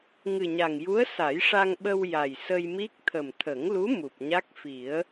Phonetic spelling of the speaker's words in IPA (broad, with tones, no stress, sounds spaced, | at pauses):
ŋ ɨ˨˩ ɲ a˨˩ ŋ j u˧˥ ə̯ s a˨˩˦ j ʂ a˧ ŋ ɓ ə˧ w j a˨˩ j s ə˧ j m i˦˥ k̚ t̪ʰ ə˨˩ m t̪ʰ ə˨˩˦ ŋ l u˧˥ m u˨˩ p̚ ɲ a˦˥ k̚ f i˨˩˦ ə̯